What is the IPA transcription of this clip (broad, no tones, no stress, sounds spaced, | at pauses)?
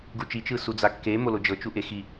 ɡ u t͡ʃ i t͡ʃ ɯ s u d͡z a kː e m o l o d͡ʒ ɤ t͡ʃ u ʔ e x i